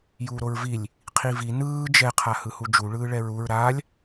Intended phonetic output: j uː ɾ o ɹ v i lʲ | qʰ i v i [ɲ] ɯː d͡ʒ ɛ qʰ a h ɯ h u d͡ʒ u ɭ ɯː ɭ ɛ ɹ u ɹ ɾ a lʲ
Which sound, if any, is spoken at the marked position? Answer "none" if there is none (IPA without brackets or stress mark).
n